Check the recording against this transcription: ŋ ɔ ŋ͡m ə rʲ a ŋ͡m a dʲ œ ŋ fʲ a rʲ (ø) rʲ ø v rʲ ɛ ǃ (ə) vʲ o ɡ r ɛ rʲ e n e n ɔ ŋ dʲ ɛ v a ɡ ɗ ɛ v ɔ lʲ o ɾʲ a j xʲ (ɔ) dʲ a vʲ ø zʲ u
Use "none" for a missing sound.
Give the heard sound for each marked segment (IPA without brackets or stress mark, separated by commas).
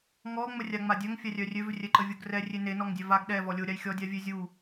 œ, ə, ɔ